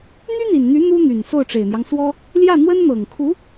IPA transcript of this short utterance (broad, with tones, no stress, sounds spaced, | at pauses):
n̪ y˥ n̪ i˨˩ n n̪ y˧˥ n̪ u˥ n̪ y˨˩ n s o˥˩ ʊ̯ ʈ͡ʂ e˨˩ ɪ̯ n̪ j ɑ˦ ŋ s w ɔ˥ | l j ä˥˩ n̪ w ə˥ n n̪ ɤ˨˩ ŋ kʰ u˧˥